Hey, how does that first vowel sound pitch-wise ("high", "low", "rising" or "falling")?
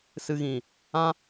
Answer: low